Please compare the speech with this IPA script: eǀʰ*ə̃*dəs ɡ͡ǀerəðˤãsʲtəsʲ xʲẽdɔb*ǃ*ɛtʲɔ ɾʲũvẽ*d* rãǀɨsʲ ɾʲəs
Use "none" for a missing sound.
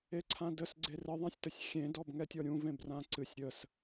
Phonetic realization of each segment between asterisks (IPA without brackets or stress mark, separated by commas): ã, ŋ, b